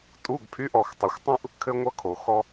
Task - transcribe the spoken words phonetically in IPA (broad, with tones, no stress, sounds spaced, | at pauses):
tʼ u˧˥˧ ɡ pʰ y˧˥˧ ʔ ɔ˨ x tˤ ʌ˨ xʷ tˤ ũ˥ ʔ | kʰ ɘ˥ ŋʷ ʌ˥ kʰ o˨ x ɔ˥